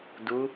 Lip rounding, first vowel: rounded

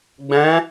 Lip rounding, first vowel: unrounded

